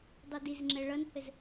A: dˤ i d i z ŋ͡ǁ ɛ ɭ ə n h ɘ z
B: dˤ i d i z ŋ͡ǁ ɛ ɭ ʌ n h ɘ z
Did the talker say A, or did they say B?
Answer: B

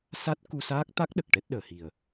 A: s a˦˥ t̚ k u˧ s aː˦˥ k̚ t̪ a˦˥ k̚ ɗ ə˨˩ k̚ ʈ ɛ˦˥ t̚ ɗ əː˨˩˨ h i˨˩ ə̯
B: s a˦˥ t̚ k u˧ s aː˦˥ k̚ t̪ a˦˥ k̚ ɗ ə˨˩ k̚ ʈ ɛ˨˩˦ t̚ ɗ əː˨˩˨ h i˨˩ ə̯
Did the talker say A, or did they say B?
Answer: A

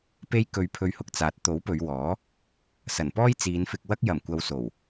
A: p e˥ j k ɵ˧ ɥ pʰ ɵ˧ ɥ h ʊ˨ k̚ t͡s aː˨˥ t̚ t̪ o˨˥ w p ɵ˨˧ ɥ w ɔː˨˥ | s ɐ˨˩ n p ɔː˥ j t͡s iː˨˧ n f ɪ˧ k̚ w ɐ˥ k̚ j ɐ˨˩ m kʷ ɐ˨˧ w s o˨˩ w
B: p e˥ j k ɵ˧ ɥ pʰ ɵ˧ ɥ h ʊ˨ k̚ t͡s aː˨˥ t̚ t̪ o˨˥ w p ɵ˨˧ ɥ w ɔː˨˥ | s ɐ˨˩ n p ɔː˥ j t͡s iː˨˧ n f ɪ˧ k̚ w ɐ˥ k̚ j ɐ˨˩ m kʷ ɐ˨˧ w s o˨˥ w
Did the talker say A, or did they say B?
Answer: A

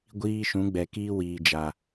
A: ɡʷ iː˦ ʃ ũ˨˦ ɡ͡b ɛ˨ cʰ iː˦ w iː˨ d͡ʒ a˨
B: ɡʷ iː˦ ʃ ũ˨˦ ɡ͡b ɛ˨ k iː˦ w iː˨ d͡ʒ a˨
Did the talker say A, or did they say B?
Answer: B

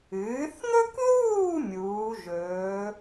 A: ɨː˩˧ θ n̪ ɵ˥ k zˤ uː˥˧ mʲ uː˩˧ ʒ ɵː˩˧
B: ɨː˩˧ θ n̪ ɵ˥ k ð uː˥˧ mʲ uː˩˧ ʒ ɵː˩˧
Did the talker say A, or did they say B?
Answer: B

